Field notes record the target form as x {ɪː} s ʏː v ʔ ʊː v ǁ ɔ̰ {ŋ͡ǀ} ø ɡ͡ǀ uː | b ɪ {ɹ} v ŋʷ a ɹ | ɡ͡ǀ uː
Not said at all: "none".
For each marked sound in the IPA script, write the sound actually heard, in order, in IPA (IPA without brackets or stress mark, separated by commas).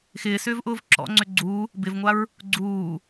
ɪː, ŋ͡ǀ, none